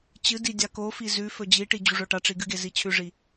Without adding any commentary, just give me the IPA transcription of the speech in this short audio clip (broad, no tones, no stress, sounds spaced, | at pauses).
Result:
t͡ɕ ɨ d i dʲ a k o f i z ʉ f ɵ d͡ʑ i ʈ i d͡ʑ u ʐ ɵ ʈ a ʈ͡ʂ i ɡ ɨ ɡ e z i t͡ɕʰ ʉ ʐ i